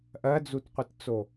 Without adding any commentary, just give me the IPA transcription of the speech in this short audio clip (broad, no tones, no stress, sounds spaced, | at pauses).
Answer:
ʔ ɜ d͡z u t qʷ i t t͡s o